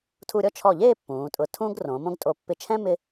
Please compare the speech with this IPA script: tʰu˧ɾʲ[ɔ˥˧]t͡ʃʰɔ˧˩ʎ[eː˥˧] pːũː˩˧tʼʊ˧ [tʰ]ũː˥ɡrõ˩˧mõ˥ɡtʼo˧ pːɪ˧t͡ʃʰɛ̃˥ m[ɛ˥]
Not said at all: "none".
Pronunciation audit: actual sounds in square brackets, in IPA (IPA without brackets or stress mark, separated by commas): ɔ˥˧, eː˥˧, tʰ, ɪ˥